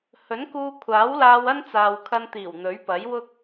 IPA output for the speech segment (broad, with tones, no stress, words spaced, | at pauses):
hɵ˨˥nkuː˧ kʷʰaː˨˥wlaː˧w ɐ˥nt͡saː˨wkʰɐ˧nt̪iː˨˩w n̪ɵ˨˥ɥpɐ˨˥jwʊ˥k̚